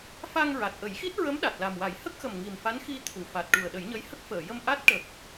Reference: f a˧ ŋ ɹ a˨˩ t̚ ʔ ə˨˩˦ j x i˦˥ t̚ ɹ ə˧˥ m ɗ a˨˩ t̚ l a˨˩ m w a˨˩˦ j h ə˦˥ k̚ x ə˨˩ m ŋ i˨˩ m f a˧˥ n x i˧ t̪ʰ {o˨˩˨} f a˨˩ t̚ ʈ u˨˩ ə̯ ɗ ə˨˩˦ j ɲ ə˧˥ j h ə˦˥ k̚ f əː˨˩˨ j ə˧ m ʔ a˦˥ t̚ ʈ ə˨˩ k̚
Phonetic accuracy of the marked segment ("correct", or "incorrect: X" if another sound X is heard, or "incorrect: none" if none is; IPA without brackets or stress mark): incorrect: u˨˩˨